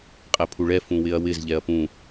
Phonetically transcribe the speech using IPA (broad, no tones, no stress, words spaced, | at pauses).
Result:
qʼɛpʰuɭɛ fũwɪɐ̯wɪz ʎɛɐ̯pũ